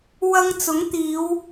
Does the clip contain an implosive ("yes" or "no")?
no